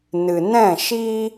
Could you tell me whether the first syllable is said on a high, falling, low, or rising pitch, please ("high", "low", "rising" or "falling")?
low